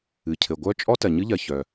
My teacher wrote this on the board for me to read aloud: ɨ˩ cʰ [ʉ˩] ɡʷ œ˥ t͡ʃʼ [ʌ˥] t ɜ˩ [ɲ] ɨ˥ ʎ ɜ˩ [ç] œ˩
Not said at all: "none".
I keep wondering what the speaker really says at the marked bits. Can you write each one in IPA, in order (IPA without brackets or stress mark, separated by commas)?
ɘ˩, ɔ˥, ɲ, ç